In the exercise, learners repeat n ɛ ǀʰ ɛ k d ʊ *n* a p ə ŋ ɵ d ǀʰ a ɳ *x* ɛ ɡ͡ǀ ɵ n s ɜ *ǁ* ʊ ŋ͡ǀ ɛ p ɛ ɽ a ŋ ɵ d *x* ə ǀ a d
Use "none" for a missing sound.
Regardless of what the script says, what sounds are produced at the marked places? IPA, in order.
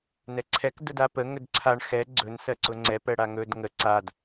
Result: d, x, ǀ, ŋ

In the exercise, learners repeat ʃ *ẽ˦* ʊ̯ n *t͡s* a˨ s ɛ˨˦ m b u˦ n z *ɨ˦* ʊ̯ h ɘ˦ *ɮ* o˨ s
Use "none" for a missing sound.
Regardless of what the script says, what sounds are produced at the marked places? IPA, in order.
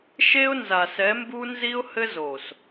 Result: e˦, z, i˦, z

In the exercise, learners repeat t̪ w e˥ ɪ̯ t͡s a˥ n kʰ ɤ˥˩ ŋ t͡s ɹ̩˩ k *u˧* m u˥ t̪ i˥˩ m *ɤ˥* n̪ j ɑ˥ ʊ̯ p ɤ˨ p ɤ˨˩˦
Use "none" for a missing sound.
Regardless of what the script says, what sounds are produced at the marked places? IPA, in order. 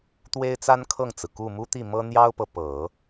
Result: u˥˩, ɤ˥

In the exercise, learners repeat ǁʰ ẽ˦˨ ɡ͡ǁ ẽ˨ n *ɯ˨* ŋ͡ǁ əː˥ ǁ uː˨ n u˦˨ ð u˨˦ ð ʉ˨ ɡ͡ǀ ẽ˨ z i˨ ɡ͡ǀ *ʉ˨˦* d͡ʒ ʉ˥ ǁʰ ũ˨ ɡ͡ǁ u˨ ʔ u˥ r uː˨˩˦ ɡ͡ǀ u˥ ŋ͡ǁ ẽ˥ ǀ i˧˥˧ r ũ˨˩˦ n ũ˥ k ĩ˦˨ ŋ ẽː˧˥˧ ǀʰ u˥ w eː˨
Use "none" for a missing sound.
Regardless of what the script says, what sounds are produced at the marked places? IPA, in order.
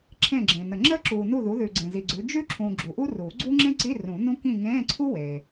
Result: ə˨, ʉ˨˦

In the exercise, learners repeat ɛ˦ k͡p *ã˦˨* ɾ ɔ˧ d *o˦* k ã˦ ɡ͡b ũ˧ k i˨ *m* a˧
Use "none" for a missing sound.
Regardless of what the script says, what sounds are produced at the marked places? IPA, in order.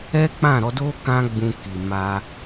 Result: ã˦˨, o˦, m

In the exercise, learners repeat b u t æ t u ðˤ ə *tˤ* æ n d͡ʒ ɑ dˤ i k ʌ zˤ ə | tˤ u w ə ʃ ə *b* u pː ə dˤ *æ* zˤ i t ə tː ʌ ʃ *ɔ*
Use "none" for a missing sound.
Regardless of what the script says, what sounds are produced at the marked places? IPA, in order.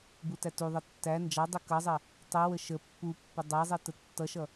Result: tː, pː, ɛ, ʌ

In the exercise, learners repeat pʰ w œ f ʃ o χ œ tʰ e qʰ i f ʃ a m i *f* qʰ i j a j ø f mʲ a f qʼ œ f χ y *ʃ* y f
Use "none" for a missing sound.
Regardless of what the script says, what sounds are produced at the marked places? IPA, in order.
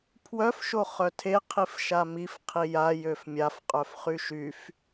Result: f, ʃ

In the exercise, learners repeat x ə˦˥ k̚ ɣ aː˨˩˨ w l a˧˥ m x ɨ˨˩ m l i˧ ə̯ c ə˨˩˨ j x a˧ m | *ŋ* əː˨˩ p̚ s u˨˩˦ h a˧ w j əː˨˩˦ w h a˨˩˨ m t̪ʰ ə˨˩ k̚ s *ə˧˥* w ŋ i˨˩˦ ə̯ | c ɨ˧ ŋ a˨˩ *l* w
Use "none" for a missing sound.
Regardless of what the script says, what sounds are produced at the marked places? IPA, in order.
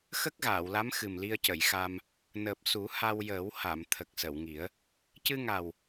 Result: n, ə˨˩˨, none

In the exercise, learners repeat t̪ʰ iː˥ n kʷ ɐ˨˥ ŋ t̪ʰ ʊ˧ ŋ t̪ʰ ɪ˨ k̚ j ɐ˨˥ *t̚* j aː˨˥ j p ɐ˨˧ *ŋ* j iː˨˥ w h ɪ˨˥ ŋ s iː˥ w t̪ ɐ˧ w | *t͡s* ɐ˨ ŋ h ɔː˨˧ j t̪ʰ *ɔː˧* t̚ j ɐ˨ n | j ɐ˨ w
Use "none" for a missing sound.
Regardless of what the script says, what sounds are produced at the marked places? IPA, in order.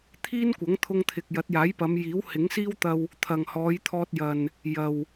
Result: t̚, m, t̪ʰ, ɔː˧

